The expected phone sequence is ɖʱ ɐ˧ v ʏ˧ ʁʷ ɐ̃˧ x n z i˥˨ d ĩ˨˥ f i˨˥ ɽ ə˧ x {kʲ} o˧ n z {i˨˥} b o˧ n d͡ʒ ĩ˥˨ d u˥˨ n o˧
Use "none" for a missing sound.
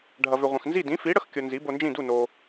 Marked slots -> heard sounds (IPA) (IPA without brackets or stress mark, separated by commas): kʲ, i˨˥